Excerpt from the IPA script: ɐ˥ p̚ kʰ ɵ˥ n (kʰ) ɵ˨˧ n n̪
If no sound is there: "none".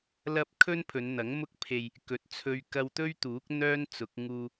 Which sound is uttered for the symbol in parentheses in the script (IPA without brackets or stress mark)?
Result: pʰ